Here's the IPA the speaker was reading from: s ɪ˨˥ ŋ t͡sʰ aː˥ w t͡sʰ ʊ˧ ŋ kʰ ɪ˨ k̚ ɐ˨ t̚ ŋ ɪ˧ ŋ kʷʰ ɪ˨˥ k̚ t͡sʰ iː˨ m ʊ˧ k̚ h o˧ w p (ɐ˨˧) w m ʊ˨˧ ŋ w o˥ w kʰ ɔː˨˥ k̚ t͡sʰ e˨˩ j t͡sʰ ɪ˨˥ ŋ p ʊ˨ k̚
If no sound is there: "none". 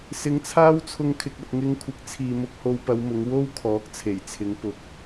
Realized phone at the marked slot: ɐ˨˧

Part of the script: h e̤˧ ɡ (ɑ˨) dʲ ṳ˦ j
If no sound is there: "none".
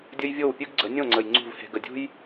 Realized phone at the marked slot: ə˨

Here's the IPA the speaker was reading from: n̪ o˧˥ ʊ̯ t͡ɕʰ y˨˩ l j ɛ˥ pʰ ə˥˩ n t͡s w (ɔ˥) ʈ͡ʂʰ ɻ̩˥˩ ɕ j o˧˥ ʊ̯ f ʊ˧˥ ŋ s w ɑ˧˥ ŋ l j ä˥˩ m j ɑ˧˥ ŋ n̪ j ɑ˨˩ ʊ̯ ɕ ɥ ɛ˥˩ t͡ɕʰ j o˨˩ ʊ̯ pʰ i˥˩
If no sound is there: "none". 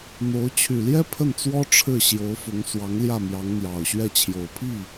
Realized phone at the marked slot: ɔ˥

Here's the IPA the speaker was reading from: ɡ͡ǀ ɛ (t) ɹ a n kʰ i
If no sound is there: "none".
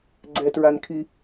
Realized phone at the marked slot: t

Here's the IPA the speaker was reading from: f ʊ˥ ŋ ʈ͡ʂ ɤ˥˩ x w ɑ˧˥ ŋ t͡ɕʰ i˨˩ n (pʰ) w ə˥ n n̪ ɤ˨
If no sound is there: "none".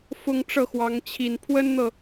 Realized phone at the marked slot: pʰ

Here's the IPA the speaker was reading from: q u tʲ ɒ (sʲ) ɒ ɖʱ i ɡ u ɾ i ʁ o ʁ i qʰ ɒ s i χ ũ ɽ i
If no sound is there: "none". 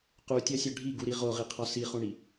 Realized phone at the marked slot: sʲ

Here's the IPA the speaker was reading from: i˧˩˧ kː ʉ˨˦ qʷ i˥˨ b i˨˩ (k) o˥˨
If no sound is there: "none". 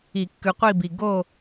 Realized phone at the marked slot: ɡ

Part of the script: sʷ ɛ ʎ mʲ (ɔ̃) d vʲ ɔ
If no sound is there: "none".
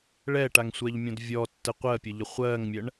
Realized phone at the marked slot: ɔ̃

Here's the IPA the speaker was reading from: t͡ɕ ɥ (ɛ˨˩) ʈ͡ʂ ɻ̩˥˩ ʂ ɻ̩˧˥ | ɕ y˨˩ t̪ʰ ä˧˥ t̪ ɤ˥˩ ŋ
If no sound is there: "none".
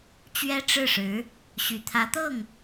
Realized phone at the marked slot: ɛ˥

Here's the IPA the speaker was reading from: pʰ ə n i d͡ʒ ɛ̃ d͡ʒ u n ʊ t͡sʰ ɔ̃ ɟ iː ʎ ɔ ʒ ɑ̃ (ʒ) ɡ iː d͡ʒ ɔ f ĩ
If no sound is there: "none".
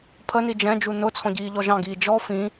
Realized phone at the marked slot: none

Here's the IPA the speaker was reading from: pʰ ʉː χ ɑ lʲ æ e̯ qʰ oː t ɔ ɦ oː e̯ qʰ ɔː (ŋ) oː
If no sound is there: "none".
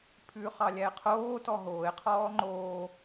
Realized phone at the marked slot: ŋ͡ǃ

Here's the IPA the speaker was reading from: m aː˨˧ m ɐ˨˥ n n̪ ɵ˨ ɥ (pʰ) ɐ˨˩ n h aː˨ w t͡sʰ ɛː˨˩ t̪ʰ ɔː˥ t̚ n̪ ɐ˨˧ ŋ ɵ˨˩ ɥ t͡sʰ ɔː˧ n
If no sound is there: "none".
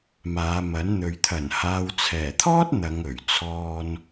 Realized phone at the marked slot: t̪ʰ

